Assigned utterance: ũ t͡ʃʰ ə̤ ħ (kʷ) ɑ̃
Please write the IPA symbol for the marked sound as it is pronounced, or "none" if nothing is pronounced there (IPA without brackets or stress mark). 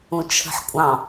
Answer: kʷʼ